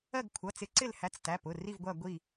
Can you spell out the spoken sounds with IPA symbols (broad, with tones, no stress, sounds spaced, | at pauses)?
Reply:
ɜ˦˨ ɡ kʷʰ ʌ˩˧˩ t͡s ɪ˨˦ ǀ ɪ˦˨ l h æ˨˦ t͡s t æ˩˧˩ p ʊ˩˧˩ r i˦˨ v ɡʷ æ˦˨ ɡʷ i˦˨